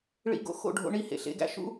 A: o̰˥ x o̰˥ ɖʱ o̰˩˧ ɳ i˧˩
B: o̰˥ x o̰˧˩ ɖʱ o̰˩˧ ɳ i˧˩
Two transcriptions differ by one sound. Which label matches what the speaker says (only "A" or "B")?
B